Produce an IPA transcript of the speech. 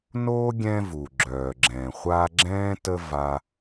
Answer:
n oː˥ ɡʲ ɛ̃˦ v u˩ ɡ͡ǁ œː˩ ɡ͡ǁ ɛ̃ː˩ χʷ a˦ ɡ͡ǁ ɛ̃ː˥ t ə˦ v a˨

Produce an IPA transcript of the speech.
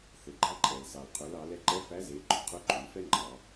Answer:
θ ɵ˩ ɡ͡ǃ æ˧ ǃʼ ɛ˩ l s ɑ˩ l qʰ ɵ˩˧ l ɑ˩˧ l ɛ˧ ǃ ɛ˧˥ f æ˧˥ z e˩˧ ɡ͡ǃ o˩ qʰ ɵ˧˥ ǃʼ ʉ˩˧ f ɛ˥ ŋ͡ǃ ɑ˩˧

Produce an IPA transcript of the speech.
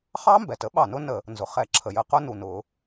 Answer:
χ ɑ˦˥ m b ɛ˩ t ə˦˥ ɓ ɑ˧˩˧ n ʊ˦˥ n ə˧˩˧ | n z ʊ˩ χ ɛ˧˩˧ ǁʰ ə˩ j ə˧˩˧ q ʊ˦˥ n u˩ n ʊ˧˩˧

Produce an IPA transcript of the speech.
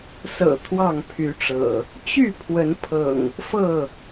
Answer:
s ɤ̰˨˩ t̪ʰ w ɑ˥˨ ŋ pʰ y˨˦ ʈ͡ʂ ɤ̰˨˩ | t͡ɕ y˥˨ pʰ w ə˨˦ n pʰ ɤ̰˨˩ ŋ | f ɤ˥˨

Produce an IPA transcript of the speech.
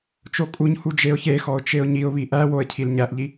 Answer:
t͡ʃ o kʼ u ɲ h u d͡ʒ e ʊ̯ ç e x ɔ ʊ̯ t͡ʃ e ʊ̯ ɲ i ʊ̯ β i ʔ æ w o ə̯ cʰ i l ɲ æ ʔ ʎ i

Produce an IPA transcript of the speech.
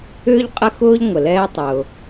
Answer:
ʏː˥ ʎ qʼ ə˥ x ʊː˥ ʎ ŋʷ ə˨ l ɛː˥ tˤ ʊː˨

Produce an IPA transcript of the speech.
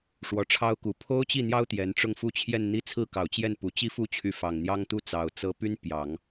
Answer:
ʂ w ɔ˧˥ ʈ͡ʂʰ ɑ˥ ʊ̯ k u˨˩ pʰ o˥ ʊ̯ t͡ɕ i˥˩ n̪ j ɑ˥ ʊ̯ t̪ j ɛ˧˥ n ʈ͡ʂ ʊ˥˧ ŋ f u˥˧ t͡ɕʰ j ɛ˥˧ n n̪ i˥˧ t͡sʰ ɹ̩˥˩ k ɑ˨˩ ʊ̯ t͡ɕ j ɛ˥˩ n p u˨˩ t͡ɕ i˥ f u˥˩ t͡ɕʰ y˧˥ f ɑ˨˩ ŋ n̪ j ɑ˥ ŋ t̪ u˥ t͡s ɑ˨˩ ʊ̯ t͡s ɤ˥ p y˥ n p j ɑ˨˩˦ ŋ

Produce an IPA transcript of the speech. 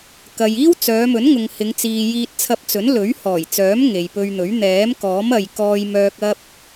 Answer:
k ɐ˨ j iː˥ w t͡s œː˨˧ m ɵ˨˥ n ŋ ʊ˨ ŋ h ɪ˨˧ ŋ t͡s iː˨ j iː˧ t̚ t͡sʰ ɐ˧ p̚ t͡s ɵ˨˥ n l ɵ˨˥ ɥ h ɔː˨˩ j t͡s œː˨˥ m ŋ e˨ j p ɵ˧ ɥ n̪ ɵ˨˥ ɥ n̪ ɛː˨˥ m k ɔː˨˥ m ɐ˨ j k ɔː˧ j m œː˧ k̚ ɐ˥ p̚

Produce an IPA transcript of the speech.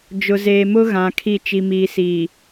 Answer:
d͡ʒ ʊ˨ z eː˨ m ʊ˦ ɣ ã˨ kʰ i˦˨ t͡ʃ i˨ m iː˨ s iː˨

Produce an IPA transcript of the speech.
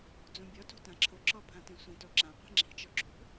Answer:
d͡z ũ bʲ ɔ t o̤ t ã ǁʰ ʊ ǁ ɔ pʰ ã t ĩ sʷ ĩ t o ǁ ã qʷ i̤ ŋ͡ǁ i̤ t͡ʃ ɔ ǁ ṳ

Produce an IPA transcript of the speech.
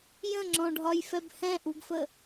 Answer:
j ə̃ ŋ͡ǁ ɔ̃ ɖʱ ɒ j f ɛ b h ɛ̃ ʔ u ɡ f ə

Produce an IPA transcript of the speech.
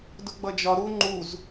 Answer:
d ʊ ɡ͡b ʌ d͡ʒ ɒ ɾ u ŋ͡ǃ u z

